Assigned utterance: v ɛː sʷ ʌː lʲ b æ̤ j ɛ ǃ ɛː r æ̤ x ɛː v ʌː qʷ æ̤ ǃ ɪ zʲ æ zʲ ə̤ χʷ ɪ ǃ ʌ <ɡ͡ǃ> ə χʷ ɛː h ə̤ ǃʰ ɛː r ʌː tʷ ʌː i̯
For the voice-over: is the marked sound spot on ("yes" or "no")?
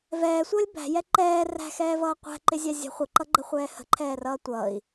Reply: yes